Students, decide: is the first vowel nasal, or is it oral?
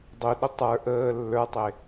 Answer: oral